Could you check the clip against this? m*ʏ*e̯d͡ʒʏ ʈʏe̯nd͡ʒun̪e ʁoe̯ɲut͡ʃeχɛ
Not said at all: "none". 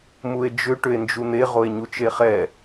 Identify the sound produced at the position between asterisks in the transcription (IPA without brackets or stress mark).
u